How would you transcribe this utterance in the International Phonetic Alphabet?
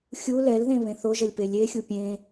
xʲ u l ɛ l ð ẽ β ẽ θ o ʒ ʌ lʲ p e lʲ e xʲ u pʲ ẽ

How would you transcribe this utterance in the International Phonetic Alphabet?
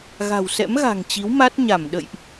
ɣ a̤˨˩ w s ɛ̰˧˥ m ɣ a̤˨˩ ŋ t͡ɕ i˨˦ w m a˦˥ t̚ ɲ a˧˩ m ɗ ə̰˧˨ j ʔ

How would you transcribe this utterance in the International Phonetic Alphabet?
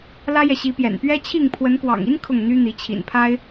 l ä˦ j ɛ˨ ɕ i˨˦ p j ɛ̰˨˩ n p ɥ ɛ˦ t͡ɕʰ i˥˨ ŋ pʰ w ə˨˦ n k w ɑ̰˨˩ ŋ i˦ n kʰ ʊ˥˨ ŋ n̪ y˦ n̪ i˨˦ t͡ɕʰ ḭ˨˩ n pʰ a˦ ɪ̯

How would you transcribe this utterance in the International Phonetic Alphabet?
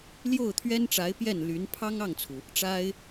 l j o˥˩ ʊ̯ t̪ʰ ɥ ɛ˥ n ʈ͡ʂ a˧˥ ɪ̯ p j ɛ˥˩ n l y˧˥ n pʰ ɑ˥ ŋ ɑ˥˩ ŋ t͡sʰ u˩ | ʈ͡ʂ a˥ ɪ̯

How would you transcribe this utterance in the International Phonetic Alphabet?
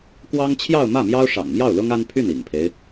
k w ɑ˥ ŋ t͡ɕʰ j ɑ˥˧ ʊ̯ m ä˥˩ m j ɑ˥ ʊ̯ ʂ ɑ̰˨˩ ŋ m j ɑ˥˩ ʊ̯ l ʊ˥ ŋ a˥ n pʰ y˥˩ n ḭ˨˩ ŋ pʰ e˦ ɪ̯

